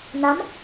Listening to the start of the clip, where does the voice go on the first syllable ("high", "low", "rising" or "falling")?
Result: rising